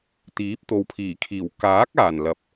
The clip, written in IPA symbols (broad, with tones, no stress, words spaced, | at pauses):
t̪iː˨˥p̚t̪o˨wpʰiː˨˩kʰiː˨˩w kaː˨˥k̚aː˨˩n lɐ˨p̚